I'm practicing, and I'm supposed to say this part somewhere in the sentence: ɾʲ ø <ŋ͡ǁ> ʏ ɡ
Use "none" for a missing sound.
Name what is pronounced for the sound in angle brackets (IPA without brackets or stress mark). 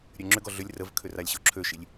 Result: ŋ͡ǁ